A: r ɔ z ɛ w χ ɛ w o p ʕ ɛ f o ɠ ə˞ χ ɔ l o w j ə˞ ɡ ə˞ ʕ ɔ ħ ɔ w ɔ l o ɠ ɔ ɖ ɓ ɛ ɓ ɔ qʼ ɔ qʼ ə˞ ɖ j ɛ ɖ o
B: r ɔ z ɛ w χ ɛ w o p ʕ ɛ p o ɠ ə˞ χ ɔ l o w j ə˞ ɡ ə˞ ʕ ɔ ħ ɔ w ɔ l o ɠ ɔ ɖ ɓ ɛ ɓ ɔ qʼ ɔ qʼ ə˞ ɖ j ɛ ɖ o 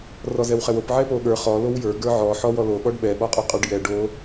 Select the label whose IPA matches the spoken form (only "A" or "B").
B